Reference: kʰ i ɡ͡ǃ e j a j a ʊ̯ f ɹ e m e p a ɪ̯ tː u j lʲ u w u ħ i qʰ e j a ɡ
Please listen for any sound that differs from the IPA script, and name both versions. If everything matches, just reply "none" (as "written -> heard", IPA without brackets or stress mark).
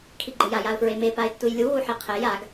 none